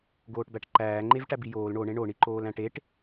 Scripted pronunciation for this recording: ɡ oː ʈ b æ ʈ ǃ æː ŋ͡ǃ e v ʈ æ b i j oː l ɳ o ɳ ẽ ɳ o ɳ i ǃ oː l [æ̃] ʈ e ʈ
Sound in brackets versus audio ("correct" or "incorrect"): correct